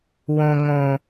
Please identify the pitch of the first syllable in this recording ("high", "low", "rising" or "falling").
low